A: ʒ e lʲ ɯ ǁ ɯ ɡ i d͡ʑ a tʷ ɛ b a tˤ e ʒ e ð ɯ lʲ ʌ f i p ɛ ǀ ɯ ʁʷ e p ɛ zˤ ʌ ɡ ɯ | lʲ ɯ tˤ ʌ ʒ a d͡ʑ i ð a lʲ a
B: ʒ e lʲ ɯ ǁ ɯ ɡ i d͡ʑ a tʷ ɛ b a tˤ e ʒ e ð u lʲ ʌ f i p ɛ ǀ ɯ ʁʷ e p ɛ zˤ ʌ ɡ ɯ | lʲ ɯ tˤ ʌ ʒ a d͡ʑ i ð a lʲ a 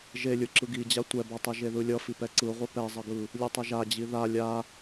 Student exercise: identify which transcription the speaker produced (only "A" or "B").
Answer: A